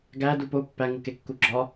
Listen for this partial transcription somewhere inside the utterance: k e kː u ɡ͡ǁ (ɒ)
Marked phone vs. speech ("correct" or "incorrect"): correct